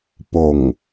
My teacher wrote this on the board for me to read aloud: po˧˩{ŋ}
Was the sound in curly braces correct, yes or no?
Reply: yes